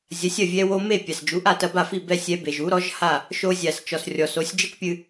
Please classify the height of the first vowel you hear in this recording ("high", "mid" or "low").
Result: low